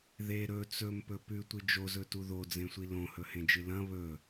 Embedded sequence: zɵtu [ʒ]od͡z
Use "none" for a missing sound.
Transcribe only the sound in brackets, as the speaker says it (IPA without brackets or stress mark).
ð